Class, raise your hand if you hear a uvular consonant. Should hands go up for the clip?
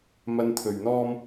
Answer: no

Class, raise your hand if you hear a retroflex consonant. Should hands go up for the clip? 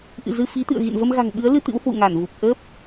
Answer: no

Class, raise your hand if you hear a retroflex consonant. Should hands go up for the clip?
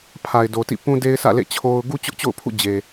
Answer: no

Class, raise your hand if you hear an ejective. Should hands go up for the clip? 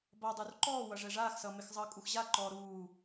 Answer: yes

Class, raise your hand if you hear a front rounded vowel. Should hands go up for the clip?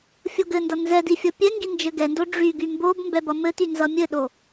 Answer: yes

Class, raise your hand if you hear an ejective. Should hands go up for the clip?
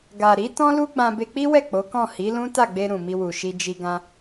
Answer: no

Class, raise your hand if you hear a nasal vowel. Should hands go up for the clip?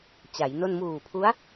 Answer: no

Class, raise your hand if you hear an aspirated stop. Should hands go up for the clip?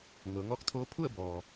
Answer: yes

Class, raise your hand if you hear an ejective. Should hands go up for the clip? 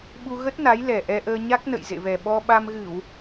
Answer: no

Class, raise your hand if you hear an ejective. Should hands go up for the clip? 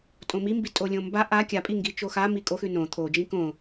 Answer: yes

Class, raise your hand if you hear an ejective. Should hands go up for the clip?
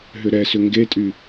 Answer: yes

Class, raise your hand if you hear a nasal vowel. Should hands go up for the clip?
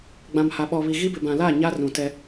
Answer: yes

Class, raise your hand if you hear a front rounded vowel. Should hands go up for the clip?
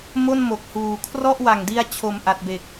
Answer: no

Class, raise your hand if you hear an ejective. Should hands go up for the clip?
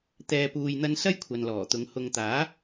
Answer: no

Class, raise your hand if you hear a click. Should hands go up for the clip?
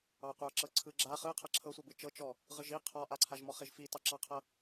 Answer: yes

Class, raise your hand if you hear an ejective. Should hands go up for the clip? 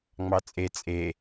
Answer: yes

